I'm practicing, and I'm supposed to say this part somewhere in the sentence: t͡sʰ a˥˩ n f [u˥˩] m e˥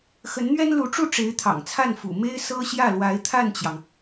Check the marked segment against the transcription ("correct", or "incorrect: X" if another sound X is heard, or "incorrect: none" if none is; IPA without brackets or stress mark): incorrect: ṵ˨˩